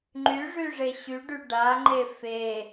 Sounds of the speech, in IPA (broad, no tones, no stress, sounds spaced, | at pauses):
ŋ͡ǃ y ʐ y ʐ e ɕ y ɖ y ɖ a ŋ͡ǃ e f e